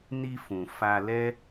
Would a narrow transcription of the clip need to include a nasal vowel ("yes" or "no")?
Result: yes